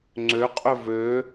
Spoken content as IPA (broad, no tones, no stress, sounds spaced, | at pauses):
ŋ͡ǀ ø qʼ ɵ v ø